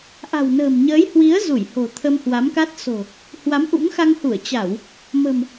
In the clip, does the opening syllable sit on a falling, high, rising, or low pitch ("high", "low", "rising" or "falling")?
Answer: low